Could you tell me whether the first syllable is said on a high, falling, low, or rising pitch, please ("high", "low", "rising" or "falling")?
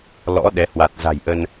rising